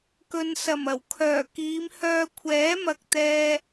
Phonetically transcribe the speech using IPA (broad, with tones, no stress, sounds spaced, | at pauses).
k ɵ˧ n s ɐ˨˩ m ɐ˨˩ w kʰ œː˨˩ k iː˨˧ m h œː˧ kʷʰ ɛː˨˥ m ɐ˨ k̚ t̪ ɛː˧